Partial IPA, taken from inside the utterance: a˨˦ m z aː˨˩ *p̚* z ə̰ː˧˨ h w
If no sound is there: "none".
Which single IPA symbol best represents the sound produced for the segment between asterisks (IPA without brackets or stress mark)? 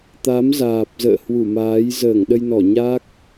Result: p̚